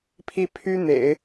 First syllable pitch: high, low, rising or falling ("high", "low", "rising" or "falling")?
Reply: falling